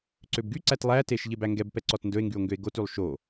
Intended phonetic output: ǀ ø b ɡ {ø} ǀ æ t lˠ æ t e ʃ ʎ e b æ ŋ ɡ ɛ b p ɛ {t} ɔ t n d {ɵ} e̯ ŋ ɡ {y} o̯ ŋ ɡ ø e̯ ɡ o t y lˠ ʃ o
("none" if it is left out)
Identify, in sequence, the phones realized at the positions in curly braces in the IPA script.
y, ǀ, ɵ, y

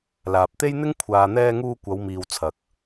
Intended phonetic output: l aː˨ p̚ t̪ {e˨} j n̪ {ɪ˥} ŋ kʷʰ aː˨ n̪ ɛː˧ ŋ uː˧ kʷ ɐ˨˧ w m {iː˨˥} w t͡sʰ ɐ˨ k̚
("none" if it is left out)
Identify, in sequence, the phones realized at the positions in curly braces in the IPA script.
e˥, ɪ˥, iː˨

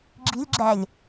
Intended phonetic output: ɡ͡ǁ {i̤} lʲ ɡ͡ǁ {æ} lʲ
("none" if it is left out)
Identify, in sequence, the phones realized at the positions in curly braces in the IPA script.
i̤, æ

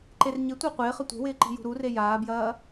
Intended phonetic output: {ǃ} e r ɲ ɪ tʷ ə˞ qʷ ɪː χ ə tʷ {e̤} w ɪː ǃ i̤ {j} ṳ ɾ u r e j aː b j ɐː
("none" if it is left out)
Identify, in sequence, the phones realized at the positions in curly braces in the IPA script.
ǃ, e̤, j

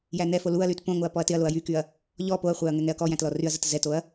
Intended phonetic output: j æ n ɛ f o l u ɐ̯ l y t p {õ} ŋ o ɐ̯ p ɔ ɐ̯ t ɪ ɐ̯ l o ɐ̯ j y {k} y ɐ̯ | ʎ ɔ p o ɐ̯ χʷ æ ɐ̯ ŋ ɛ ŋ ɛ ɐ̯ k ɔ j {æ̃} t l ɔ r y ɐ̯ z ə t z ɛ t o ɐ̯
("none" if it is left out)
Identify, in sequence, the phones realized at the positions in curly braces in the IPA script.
õ, k, æ̃

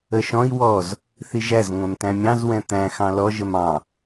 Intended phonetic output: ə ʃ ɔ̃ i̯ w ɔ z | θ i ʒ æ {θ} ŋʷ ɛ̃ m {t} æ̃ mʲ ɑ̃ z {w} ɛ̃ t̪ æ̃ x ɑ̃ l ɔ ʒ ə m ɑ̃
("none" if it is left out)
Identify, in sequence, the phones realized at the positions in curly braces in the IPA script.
z, t, w

